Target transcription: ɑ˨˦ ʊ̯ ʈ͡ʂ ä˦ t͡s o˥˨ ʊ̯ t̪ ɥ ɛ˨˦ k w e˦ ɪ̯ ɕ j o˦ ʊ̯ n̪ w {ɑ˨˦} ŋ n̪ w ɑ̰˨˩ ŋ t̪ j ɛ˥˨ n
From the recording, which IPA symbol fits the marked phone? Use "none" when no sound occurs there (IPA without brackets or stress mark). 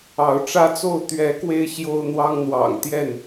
ɑ˦